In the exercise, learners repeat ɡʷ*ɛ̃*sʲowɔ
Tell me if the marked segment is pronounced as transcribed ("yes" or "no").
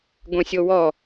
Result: yes